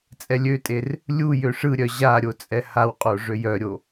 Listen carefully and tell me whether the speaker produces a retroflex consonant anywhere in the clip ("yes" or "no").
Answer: yes